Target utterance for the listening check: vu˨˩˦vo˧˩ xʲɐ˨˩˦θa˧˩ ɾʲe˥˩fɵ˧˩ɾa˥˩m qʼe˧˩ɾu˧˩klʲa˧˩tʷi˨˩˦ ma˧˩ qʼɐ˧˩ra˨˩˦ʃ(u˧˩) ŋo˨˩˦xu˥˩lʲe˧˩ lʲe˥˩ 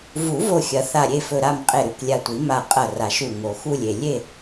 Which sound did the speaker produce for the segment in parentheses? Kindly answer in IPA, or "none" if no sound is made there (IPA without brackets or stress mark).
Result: u˧˩